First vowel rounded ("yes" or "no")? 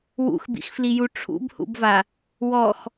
yes